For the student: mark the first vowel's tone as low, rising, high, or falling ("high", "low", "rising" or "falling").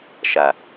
low